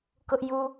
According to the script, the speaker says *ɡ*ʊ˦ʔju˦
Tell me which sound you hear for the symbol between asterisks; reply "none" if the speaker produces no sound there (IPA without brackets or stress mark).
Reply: k